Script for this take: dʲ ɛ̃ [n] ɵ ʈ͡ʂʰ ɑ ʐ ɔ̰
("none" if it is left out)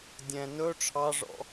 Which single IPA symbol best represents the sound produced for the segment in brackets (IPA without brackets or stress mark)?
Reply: n